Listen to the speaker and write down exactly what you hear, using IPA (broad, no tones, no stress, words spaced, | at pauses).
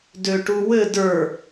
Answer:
døʈuwɘ də˞